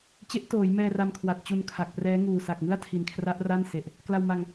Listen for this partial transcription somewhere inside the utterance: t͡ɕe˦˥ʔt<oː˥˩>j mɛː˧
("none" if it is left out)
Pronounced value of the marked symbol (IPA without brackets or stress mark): oː˩˦